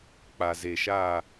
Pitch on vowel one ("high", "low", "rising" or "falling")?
low